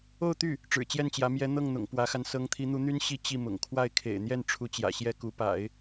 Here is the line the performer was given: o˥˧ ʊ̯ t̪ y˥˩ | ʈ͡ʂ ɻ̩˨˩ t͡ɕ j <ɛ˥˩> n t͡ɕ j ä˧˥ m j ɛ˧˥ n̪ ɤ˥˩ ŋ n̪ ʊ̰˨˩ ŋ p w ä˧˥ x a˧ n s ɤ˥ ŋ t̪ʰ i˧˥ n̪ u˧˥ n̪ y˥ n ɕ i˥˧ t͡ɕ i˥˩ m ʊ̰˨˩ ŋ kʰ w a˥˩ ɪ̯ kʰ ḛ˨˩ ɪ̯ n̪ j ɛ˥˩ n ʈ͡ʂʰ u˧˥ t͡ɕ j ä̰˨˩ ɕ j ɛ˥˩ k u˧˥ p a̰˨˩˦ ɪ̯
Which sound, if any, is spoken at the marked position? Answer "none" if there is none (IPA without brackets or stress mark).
ɛ˥˩